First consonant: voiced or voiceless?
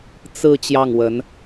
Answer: voiceless